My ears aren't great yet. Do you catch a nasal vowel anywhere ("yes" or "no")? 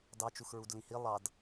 yes